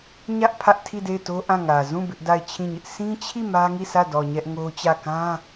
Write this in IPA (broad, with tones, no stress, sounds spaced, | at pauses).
ɲ ä˦ ʔ pʰ ä˦ ʔ tʰ i˦˨ d e˦˨ ɪ̯ t o˦ ʔ ã˦˨ ŋ ä˨ z ũ˦˨ b ɪ˦ ʔ d a˦˨ ɪ̯ t͡ɕʰ ĩ˦˨ ɲ ɪ˦ ʔ s ĩ˦ t͡ɕʰ i˦˨ m ä˦ ŋ i˦˨ s ä˦˨ d ɔ˨ ɲ ɛ˦ ʔ ŋ o˦ t͡ɕ ä˦˨ k ã˦